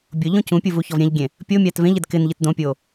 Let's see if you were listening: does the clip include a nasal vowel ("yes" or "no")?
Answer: yes